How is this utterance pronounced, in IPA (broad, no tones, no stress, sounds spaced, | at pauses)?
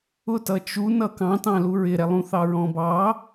ʊ t ʌ t͡ʃ u n ʌ k ɑ̃ t ɑ̃ l u ɹ ɪ ɾ ɛ lˠ ũ θ ɑ ɹ ɔ̃ b ɑ